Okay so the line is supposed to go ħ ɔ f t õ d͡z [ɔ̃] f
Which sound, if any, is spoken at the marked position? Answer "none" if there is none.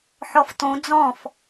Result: ɔ̃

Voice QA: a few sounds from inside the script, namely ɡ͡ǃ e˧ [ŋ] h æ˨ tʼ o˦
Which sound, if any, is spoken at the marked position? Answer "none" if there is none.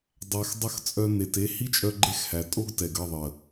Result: x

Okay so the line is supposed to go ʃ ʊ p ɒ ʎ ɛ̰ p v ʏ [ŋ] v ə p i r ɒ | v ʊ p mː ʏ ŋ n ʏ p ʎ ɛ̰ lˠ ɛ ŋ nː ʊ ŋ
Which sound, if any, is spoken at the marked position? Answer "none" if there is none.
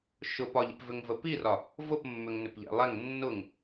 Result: ŋ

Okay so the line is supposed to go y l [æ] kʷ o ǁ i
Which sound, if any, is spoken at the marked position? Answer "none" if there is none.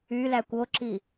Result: æ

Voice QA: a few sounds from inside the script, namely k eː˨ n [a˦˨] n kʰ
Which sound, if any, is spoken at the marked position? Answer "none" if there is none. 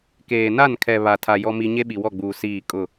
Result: a˦˨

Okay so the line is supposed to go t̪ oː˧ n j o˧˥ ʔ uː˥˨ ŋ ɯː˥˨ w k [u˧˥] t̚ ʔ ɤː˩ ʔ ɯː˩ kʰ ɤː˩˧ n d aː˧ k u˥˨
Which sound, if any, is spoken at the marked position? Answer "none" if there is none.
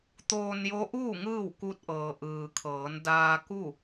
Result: u˧˥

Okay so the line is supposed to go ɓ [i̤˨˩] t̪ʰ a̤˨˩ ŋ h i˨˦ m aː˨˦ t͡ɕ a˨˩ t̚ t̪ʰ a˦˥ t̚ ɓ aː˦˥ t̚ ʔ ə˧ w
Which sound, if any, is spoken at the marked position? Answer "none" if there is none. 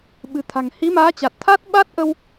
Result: ɨ̤˨˩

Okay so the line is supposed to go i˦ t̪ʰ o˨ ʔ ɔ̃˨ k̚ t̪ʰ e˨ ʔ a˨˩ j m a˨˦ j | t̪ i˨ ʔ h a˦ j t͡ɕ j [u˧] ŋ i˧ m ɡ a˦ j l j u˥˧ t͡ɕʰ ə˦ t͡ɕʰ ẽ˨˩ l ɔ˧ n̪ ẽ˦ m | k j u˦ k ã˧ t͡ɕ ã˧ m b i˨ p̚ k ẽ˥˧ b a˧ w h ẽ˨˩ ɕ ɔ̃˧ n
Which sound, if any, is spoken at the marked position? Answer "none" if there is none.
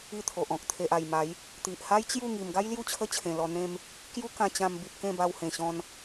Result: u˥˧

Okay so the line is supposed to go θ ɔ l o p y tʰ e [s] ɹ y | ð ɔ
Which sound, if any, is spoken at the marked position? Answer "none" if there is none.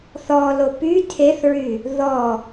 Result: θ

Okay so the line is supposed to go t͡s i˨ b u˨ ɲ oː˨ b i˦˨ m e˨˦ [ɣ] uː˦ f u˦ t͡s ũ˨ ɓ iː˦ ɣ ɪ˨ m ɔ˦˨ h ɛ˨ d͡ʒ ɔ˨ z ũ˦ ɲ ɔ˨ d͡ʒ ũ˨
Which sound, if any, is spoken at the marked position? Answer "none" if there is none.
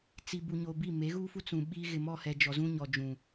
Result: ɣ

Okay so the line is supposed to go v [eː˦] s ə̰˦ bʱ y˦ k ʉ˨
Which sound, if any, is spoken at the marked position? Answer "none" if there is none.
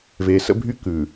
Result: eː˨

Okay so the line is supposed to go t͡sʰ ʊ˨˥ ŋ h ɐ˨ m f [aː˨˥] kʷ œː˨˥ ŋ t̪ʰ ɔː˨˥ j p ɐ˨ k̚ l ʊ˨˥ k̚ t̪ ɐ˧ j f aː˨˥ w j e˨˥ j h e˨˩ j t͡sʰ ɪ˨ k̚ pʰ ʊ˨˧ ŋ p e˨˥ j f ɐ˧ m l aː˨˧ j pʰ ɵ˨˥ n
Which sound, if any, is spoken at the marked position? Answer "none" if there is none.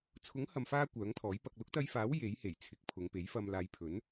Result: aː˧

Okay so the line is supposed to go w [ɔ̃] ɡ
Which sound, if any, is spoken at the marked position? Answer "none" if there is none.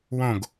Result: õ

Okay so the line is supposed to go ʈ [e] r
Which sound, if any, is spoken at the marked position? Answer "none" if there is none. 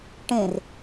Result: ẽ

